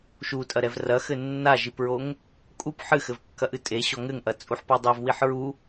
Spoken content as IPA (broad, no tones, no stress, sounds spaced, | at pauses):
ʃ u tʼ ɐ ɾ ɛ v r ɐ x ɘ nː a ʒ i p ɹ o ŋ | kʼ u p ħ ɨ x ɘ v kː ɐ ʔ ɨ tʼ e ɕ ɔ ŋ ɘ ŋ ʔ ɐ t͡sʼ u ħ p ɔ dˤ ɐ v w i ħ ɹ u